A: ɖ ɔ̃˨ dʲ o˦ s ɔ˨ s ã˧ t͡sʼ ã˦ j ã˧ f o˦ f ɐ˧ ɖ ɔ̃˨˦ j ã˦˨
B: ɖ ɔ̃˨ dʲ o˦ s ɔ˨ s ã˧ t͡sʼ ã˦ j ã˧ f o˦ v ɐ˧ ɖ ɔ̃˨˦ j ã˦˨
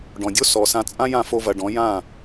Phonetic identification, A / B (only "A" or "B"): B